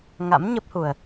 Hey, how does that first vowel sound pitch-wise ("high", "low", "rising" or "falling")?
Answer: rising